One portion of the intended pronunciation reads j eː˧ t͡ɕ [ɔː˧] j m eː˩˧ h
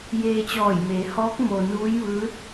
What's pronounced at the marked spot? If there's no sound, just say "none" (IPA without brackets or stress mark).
ɔː˧˩